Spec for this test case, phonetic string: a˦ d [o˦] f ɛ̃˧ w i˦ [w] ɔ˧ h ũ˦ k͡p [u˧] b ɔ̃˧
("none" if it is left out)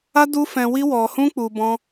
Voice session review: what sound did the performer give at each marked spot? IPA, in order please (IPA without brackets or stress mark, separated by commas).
u˦, w, u˧